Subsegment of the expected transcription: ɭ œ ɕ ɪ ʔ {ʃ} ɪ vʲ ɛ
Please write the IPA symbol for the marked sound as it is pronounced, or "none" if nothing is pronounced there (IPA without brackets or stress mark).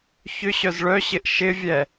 ʃ